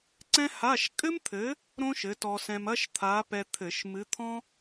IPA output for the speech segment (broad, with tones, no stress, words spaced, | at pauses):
ǀɛ̃˥ha˧˥˧ʃ kʼɘ˥mt̪ʰɘ˨˥ | ɾõ˥ʃɘ˨˥tɔ˧sɛ̃˧m ɐ˥ʃt̪ʰa˨˥pɛ˧t̪ʰɘ˧˩˧ʃ mɨ˨˥t̪ʰɔ̃˥